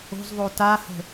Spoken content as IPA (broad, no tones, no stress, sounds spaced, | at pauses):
o̤ z ðˤ o t a h ə̤